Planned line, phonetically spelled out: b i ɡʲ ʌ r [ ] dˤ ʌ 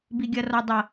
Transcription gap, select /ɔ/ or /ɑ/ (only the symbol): ɔ